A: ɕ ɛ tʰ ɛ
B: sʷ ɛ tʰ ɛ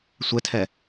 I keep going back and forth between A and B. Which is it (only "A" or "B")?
B